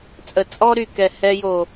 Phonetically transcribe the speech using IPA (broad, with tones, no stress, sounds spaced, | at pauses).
t͡sʼ ə˨ t͡sʼ ɔ˦ ɾ y˨ k ɛ˨ h ɛ˧ j o˨